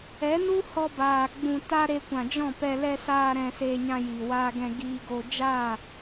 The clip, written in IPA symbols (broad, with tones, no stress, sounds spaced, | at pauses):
ɛ˨˦ n u˦ h ɔ˧ b aː˨ ɡ͡b ũ˨ t a˧ ɾ e˧ kʷ ã˨ d͡ʒ ɔ̃˦˨ p ɛ˧ l ɛ˧ s aː˧ ɾ ɛ̃˧ s eː˧ ɲ ã˧ j i˨ w aː˧ ɡ ɛ̃˧ ɡ iː˧ ɡ o˧ d͡ʒ a˦˨